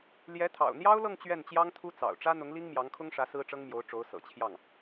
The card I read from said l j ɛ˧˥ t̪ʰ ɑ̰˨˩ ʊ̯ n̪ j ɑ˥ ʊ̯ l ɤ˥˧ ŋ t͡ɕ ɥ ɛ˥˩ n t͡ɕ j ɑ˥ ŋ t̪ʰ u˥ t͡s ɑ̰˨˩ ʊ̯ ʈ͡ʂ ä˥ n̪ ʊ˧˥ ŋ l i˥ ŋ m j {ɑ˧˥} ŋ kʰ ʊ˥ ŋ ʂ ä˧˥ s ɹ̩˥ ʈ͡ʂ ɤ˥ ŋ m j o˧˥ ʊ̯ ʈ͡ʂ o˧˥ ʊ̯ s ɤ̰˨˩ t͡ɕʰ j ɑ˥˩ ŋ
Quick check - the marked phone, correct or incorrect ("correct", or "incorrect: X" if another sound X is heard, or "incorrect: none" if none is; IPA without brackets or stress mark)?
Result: correct